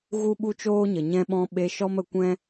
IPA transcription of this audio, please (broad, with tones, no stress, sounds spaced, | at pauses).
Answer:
ɣ u˦ ɓ u˦ t͡ʃ oː˦ ɲ ə˨ ɲ ɛ̃˧ ɓ ɔ̃˧ ɓ e˧ ʃ ɔ˦ m ə˧ kʷ ɛ̃˦